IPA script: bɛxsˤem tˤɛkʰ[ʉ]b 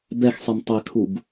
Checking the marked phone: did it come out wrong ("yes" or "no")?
yes